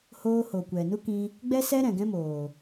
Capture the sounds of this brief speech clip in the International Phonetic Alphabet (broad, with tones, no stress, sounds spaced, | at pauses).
h oː˧ h o˨ kʷ ɛ˨ n u˦ k ĩ˧ | ɡ͡b ɛ˦ s ɛ˦ ɾ ɛ̃˨ ɡ ɛ̃˦ m oː˨